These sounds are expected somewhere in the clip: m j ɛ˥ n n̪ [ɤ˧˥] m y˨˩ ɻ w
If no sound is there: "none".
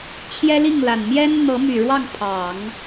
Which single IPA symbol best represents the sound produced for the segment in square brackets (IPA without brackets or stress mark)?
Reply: ɤ˧˥